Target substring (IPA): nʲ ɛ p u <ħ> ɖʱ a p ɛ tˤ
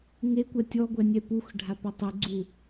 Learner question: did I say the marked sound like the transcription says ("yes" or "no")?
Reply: no